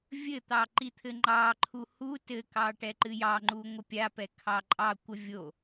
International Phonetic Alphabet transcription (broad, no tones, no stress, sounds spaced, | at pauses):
vʲ ɘ t̪ ɑ ǃ i t̪ʰ ɘ ŋ͡ǃ ɑ ǃʰ u h u t ɘ k ɑ ʈ ɛ ǃ ɨ j ɑ ŋ͡ǃ u ŋʷ ə pʲ a p ɛ kʰ ɑ ǃʼ ɑ kʷ ə vʲ o